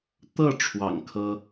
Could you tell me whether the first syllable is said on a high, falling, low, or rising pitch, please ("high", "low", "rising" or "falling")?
falling